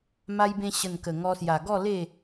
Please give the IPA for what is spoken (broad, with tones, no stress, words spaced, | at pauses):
ma˧jbẽ˧ɕə˨˩n kə˨˩ŋɔ˧sja˨˩ ɡɔ˥˧le˥˧